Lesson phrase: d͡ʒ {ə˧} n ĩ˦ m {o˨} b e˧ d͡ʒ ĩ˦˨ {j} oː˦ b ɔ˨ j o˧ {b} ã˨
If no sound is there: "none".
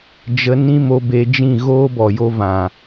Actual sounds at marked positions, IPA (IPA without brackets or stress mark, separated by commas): ə˧, o˧, ɣ, v